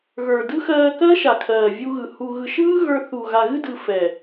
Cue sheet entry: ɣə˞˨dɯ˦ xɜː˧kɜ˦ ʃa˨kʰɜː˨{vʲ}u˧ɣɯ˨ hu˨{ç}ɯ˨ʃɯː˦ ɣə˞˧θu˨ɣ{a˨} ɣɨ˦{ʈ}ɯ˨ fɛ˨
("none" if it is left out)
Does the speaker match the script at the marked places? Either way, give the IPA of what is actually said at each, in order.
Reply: vʲ, ɣ, a˨, d

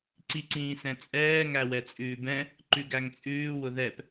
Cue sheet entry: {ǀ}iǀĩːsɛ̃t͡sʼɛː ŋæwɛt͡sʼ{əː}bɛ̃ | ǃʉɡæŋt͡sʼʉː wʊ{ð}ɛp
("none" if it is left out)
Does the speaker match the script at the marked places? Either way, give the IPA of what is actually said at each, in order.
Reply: ǀ, ʉː, ð

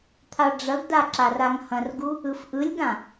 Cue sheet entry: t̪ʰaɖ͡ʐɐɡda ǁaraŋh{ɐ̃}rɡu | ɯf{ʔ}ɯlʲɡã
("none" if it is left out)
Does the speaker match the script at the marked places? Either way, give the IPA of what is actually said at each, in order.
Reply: ɐ̃, ʔ

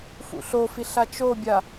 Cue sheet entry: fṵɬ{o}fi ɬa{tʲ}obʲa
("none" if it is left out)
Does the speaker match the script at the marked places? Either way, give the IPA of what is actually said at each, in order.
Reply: o, t͡ʃ

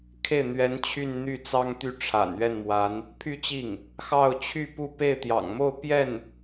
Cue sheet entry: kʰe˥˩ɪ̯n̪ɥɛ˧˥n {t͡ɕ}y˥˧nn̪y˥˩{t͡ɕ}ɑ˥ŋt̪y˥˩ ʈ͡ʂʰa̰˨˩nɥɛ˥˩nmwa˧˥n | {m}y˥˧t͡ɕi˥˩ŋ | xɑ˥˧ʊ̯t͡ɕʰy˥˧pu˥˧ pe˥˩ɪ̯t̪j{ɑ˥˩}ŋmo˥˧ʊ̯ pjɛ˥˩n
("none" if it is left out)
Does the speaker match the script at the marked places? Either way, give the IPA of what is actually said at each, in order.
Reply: t͡ɕʰ, t͡s, pʰ, ɑ̰˨˩

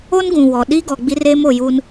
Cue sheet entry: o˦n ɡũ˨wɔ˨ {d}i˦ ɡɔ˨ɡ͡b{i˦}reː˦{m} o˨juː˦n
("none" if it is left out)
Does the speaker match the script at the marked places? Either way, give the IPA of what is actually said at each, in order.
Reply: ɗ, i˦, m

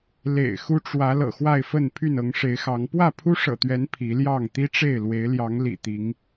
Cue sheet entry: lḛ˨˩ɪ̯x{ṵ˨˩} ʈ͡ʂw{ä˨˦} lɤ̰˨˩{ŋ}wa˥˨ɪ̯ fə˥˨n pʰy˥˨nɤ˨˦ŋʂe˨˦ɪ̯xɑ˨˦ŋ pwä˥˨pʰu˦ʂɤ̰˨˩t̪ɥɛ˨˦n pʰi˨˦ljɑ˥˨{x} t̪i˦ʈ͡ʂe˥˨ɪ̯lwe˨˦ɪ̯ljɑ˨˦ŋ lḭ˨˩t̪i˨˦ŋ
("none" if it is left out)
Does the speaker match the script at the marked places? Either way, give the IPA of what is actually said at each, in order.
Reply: u˦, ä˨˦, x, ŋ

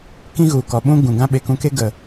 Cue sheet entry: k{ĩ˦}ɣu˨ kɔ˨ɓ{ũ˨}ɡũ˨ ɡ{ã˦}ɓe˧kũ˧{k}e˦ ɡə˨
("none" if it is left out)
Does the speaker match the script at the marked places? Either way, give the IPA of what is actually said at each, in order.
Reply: ĩ˦, ũ˦, ã˦, k

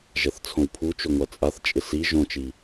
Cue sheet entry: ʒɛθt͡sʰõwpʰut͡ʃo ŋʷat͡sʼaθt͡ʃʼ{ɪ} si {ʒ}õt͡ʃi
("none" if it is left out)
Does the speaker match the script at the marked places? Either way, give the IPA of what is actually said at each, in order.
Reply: ɪ, ʒ

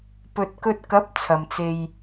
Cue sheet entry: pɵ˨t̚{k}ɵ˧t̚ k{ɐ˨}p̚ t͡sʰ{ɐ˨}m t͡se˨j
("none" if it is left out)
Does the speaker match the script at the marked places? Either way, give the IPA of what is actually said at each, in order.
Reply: k, ɐ˨˥, ɐ˨

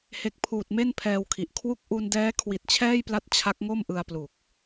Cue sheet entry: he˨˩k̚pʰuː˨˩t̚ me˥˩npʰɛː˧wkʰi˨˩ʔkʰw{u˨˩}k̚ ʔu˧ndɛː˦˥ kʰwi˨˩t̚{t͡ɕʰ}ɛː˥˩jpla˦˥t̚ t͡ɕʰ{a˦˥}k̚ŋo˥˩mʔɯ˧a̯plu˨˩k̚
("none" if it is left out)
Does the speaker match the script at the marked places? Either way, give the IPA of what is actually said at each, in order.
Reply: u˥˩, t͡ɕʰ, a˦˥

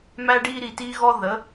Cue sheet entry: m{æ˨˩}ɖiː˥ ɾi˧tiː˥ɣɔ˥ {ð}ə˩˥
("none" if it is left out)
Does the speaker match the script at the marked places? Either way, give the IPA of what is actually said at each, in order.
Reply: æ˥, ð

